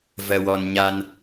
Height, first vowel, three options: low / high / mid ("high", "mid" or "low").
mid